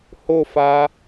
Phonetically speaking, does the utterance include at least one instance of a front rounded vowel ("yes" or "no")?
no